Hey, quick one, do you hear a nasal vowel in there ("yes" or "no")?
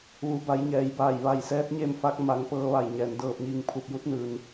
no